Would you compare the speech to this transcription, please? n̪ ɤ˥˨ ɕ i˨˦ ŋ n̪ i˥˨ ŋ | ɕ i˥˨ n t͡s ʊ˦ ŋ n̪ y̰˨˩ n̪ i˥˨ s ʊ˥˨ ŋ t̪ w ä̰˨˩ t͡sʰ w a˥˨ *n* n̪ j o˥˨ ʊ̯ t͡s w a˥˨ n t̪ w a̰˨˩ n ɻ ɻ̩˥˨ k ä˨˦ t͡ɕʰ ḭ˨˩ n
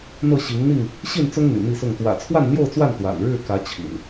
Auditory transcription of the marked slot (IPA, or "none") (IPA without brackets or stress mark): n